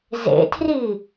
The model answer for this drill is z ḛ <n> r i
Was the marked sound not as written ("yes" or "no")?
yes